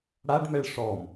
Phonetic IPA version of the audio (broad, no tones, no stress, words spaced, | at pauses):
ɽaɖmɛɭ ʂɔm